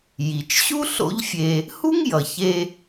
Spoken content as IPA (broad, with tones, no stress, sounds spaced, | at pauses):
j i˩ t͡ʃ ɕ u˥ ɬ o̰˥ ʎ fʲ e˧ | h u˥ ŋ j ʌ˩ ç e˧